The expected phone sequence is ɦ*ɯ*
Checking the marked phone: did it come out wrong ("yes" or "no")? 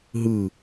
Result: no